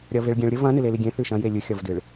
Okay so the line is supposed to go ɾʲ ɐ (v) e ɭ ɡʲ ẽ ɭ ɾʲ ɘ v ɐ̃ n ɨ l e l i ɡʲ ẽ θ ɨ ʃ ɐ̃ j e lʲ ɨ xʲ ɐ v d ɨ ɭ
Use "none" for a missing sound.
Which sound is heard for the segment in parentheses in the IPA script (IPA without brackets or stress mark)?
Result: v